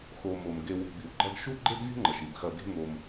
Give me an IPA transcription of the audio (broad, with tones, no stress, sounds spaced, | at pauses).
x o˨ m o˩ m ɡ e˨ w e̤˨ b i˩ w ɡ͡ǃ ɐ˦ ɡ ʃ u˥ ɡ͡ǃ e˥ ɡ vʲ ṳ˥ ŋ͡ǃ ɐ˩ ʃ i˩ b x ɐ˨ ɡ e̤˦ ŋ o˨ m